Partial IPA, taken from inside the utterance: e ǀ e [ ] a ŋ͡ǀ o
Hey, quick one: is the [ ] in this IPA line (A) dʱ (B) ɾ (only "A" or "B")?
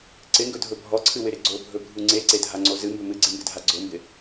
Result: A